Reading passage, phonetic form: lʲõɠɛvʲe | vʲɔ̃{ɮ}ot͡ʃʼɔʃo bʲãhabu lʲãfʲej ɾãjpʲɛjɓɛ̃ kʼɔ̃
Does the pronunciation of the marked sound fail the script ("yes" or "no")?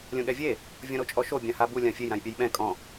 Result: yes